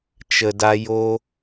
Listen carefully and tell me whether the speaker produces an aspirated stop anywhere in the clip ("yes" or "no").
no